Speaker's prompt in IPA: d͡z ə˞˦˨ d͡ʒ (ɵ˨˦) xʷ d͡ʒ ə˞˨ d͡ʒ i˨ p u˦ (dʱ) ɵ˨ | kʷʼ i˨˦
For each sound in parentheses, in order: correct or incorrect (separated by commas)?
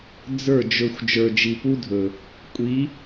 incorrect, correct